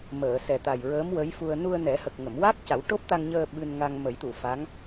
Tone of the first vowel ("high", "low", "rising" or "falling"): low